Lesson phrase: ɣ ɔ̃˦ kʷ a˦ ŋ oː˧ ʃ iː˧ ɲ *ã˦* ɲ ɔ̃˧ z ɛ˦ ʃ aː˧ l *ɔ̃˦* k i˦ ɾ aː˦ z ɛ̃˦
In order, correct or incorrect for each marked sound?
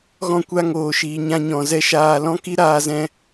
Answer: correct, correct

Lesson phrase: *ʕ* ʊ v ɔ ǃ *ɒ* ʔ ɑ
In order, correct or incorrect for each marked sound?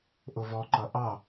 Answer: incorrect: ʔ, incorrect: ʌ

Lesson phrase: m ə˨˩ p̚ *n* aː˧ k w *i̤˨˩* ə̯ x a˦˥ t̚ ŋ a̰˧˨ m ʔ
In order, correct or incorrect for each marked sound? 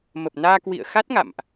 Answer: correct, incorrect: ḭ˧˨

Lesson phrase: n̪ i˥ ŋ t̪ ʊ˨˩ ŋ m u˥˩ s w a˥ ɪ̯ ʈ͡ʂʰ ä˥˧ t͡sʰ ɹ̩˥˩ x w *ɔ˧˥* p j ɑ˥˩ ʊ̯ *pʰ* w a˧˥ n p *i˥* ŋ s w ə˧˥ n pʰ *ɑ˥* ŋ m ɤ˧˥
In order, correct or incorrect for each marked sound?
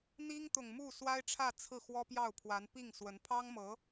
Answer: incorrect: ɔ˥, correct, incorrect: i˥˩, correct

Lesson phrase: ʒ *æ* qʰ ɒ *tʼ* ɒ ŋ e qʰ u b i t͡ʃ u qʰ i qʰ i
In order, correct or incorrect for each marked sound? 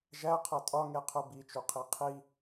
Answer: correct, correct

